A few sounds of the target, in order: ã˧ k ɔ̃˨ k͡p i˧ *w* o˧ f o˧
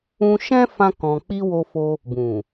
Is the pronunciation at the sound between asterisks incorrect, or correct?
correct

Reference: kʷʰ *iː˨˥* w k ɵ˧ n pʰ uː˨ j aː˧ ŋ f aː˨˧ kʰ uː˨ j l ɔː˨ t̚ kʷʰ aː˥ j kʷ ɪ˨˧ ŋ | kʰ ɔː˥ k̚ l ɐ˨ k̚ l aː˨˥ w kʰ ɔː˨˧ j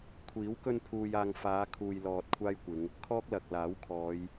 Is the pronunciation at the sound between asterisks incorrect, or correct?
correct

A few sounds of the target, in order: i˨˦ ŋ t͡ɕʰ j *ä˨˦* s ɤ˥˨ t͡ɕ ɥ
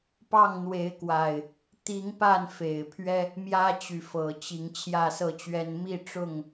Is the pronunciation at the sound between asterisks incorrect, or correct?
incorrect: ä˥˨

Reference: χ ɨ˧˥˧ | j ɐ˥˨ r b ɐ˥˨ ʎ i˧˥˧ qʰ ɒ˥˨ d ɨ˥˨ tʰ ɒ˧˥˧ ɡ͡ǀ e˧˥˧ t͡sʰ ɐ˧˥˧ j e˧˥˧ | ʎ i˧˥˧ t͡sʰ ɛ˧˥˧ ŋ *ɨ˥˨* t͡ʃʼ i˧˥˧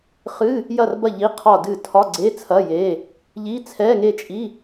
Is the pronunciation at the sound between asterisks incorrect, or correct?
incorrect: e˥˨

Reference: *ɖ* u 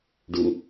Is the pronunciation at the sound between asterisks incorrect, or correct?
correct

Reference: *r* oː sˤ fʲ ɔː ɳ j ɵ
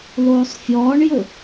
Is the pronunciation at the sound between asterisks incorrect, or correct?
incorrect: l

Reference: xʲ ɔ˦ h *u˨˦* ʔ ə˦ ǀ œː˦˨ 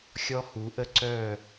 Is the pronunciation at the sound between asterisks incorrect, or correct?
correct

